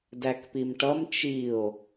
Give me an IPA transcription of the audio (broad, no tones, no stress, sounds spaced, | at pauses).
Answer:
d æ k p i m ʈ ʌ m t͡ʃ i o̯